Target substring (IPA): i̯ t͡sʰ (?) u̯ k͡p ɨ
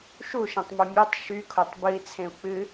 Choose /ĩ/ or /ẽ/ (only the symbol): ẽ